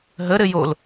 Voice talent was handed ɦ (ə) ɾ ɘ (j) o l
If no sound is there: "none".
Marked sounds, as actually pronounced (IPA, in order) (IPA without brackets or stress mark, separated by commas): ə, j